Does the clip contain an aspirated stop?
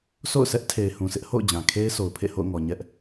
yes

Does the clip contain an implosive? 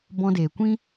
no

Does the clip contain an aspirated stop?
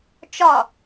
no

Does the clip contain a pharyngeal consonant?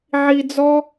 yes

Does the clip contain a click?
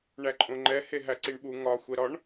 yes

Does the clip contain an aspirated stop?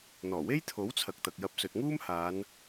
yes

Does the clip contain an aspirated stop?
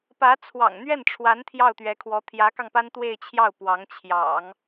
yes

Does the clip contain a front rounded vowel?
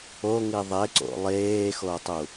no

